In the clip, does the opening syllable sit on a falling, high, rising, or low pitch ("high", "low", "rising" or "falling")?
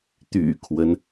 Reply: low